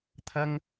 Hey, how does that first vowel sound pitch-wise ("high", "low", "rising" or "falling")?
high